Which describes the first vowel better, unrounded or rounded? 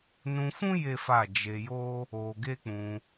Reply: rounded